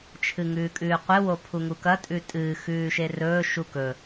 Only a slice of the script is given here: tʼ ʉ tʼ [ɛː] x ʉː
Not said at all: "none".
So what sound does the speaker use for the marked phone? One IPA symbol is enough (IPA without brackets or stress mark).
ɨː